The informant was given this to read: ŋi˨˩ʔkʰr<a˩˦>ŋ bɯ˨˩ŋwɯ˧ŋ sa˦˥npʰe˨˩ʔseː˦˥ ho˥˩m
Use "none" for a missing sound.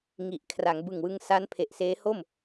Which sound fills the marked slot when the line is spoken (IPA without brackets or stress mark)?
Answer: a˩˦